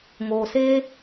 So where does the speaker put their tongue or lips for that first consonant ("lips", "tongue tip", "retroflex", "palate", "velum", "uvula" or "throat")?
velum